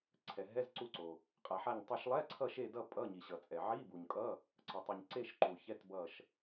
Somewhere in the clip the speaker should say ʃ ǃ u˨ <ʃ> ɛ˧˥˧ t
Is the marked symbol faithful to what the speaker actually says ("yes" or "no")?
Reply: no